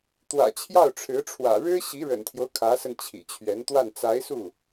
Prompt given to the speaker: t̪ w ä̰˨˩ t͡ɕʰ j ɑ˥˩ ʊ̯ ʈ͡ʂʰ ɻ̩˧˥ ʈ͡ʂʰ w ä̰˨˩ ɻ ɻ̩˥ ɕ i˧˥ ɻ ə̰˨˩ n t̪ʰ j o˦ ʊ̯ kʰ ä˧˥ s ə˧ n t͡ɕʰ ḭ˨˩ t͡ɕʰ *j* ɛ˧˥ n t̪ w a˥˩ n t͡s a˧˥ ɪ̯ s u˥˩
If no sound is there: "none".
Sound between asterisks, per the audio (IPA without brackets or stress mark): ɥ